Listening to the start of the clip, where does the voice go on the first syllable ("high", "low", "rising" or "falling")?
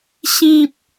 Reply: high